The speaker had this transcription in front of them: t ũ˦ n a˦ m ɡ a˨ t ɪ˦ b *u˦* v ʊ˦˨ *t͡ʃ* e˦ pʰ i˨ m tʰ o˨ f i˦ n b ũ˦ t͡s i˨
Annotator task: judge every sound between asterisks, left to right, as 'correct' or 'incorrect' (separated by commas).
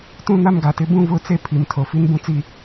incorrect, incorrect